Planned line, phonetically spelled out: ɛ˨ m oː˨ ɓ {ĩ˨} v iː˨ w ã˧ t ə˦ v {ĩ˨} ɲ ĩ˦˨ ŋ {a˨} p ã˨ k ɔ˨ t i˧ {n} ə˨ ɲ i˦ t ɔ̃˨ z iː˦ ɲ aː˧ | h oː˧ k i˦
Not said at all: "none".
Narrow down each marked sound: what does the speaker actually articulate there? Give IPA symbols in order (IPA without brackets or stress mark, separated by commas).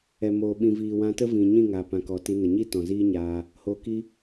ĩ˨, ĩ˨, a˨, n